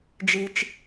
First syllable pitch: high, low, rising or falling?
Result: low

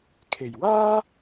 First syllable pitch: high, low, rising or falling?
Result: low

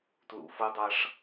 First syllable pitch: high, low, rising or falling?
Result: low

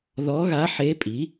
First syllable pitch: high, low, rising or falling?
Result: rising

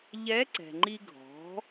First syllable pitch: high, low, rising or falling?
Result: rising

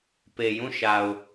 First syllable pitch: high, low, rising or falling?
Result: low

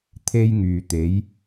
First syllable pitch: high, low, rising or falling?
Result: high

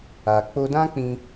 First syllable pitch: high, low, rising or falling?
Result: low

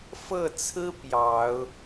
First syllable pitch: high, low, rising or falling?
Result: falling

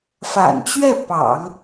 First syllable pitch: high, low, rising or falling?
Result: low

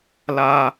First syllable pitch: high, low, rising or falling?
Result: high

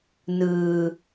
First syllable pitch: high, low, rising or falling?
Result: low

